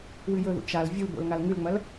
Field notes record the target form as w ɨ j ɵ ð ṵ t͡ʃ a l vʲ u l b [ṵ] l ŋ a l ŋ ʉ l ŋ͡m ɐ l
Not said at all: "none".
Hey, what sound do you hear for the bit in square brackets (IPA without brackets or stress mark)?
o̰